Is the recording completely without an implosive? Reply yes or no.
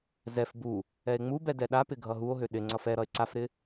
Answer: no